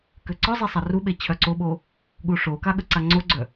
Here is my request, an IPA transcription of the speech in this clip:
k ø ǀ ɔ zˤ i sˤ a r u ɓ e t͡ɕʰ œ ǀ o ɓ o | ɠ u ʂ o k a ɠ ə ǀ a ŋ͡ǀ o ɡ͡ǀ œ

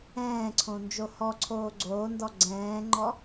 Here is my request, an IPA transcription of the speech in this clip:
ɛ̃ː ǀʰ õ n d͡ʒ o h ɔ ǀʰ oː ɡ͡ǀ oː n d ɔ ɡ͡ǀ ɛ̃ː ŋ͡ǃ ɔ

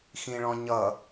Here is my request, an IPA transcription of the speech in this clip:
x ĩ ɭ ɔ̃ ɲ ʌ

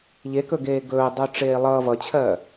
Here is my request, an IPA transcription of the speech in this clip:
ʎ e k ɵ ɡ eː ɡ ɵː dˤ ɵː ʈ͡ʂ eː lˠ ʌː v ʌ t͡ɕʰ ɜː

